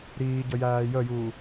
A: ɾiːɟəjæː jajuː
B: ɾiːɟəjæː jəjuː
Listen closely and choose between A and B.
B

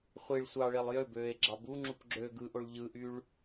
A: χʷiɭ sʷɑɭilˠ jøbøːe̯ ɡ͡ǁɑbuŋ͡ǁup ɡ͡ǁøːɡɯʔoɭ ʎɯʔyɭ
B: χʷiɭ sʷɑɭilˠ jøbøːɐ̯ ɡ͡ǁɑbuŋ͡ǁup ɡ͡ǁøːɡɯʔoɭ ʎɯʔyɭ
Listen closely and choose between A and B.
A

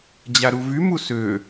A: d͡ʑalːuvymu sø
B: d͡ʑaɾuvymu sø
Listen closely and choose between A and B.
B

